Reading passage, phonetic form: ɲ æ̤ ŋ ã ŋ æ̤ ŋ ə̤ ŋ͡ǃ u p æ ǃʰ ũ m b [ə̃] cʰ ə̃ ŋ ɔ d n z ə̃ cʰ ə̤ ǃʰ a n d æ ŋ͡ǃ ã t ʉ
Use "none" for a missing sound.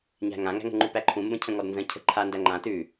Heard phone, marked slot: ə̃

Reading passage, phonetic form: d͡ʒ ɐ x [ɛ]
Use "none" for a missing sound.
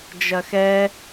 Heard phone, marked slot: ɛ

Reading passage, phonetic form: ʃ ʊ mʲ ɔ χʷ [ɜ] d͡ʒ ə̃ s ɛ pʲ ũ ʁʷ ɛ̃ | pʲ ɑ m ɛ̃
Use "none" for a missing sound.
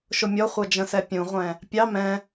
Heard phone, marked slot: ɜ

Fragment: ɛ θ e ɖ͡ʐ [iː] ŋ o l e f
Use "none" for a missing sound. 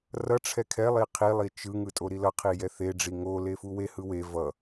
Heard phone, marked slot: i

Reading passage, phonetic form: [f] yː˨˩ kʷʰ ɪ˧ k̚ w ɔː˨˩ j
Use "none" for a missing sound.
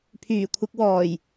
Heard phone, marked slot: pʰ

